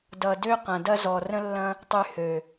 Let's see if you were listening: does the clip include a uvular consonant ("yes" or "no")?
yes